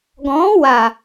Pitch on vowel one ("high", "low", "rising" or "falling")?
rising